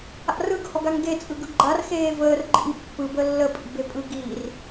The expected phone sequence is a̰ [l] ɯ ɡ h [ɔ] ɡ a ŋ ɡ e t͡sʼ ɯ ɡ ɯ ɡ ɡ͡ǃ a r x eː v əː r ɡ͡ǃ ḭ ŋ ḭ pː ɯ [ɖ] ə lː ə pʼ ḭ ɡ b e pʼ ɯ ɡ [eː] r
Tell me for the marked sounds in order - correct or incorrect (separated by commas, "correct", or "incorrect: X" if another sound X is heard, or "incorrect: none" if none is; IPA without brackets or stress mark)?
incorrect: r, correct, incorrect: b, incorrect: iː